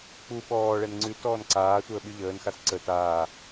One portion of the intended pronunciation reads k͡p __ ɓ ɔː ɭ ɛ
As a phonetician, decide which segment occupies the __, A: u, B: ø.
A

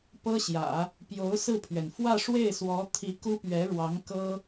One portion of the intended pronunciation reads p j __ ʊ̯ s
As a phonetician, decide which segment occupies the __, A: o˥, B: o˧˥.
B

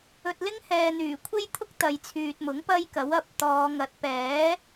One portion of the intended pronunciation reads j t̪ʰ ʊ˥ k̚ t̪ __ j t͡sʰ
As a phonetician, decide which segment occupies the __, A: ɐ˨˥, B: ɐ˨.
B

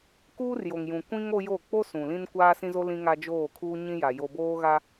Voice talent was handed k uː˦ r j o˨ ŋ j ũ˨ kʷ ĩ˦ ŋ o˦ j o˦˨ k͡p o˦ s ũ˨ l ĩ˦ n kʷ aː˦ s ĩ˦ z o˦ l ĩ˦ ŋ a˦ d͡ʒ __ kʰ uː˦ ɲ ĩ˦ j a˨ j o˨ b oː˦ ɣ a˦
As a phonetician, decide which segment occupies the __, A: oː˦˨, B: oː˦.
A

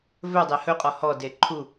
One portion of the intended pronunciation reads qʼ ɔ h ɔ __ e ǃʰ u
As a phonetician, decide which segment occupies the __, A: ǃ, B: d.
B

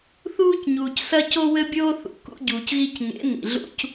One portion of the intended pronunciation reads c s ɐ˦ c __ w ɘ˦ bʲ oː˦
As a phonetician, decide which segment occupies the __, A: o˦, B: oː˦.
A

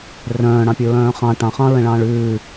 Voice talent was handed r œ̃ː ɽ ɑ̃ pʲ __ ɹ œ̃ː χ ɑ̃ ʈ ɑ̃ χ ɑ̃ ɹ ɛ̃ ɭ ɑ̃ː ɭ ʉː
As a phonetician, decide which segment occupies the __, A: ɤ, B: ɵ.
B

